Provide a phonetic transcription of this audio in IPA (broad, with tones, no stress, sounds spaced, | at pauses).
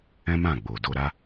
ɛ̃˦ m ã˦˨ ɡ͡b o˨ d o˧ ɾ a˦